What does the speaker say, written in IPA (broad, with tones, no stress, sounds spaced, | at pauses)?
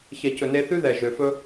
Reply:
ç ɛ˨ c ɵ˨ n e˧ θ ʉ˦ ð ɛ˨ ʒ ø˨ f ɵ˦